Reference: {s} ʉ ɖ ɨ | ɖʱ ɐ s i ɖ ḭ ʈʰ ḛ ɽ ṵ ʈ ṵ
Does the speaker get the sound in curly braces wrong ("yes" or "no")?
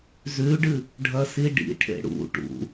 yes